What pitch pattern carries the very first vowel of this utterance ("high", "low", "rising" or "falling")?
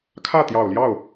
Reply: falling